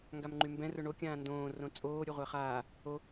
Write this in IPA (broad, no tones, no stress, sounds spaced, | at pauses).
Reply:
ŋ ɡ a m ŋ͡ǃ y m b ɛ̃ r ʊ ɳ o kʲ ãː n d õː r õ t͡sʼ oː ɾʲ ʊ ʁʷ ɛ χ aː | o